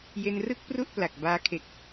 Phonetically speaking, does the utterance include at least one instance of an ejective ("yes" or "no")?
no